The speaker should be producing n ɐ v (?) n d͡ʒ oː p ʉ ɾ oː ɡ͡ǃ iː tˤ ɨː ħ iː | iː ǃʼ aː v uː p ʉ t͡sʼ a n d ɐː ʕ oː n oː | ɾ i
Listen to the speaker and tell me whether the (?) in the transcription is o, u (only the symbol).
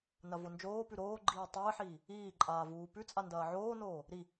o